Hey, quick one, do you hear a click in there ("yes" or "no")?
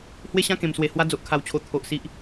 no